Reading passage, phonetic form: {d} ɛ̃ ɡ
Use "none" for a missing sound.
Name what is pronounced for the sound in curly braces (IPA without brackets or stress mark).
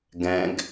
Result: ɡ